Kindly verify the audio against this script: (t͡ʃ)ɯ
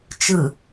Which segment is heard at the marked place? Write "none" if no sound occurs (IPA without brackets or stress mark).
t͡ʃ